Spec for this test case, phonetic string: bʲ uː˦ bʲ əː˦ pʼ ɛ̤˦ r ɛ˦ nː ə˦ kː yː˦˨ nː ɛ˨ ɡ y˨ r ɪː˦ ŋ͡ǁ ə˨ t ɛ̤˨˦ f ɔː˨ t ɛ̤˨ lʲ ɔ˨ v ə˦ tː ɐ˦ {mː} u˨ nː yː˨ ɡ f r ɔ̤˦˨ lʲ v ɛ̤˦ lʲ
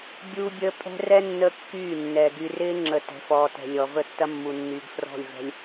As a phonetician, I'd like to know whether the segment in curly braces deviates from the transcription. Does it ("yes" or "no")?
no